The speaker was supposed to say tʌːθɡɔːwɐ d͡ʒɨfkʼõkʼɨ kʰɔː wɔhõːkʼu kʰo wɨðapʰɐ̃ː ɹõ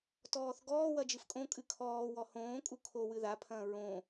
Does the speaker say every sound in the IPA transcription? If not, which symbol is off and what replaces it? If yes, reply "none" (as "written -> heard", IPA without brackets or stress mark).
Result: ʌː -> ɔː